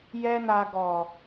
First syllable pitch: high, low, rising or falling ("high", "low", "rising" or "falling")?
high